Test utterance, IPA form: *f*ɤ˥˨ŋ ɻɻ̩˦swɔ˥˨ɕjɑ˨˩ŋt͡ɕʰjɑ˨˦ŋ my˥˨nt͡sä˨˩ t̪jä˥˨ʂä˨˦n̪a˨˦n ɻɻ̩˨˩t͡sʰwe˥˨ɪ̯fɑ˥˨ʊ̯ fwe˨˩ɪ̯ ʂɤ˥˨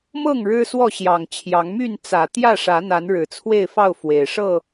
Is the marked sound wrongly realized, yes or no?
yes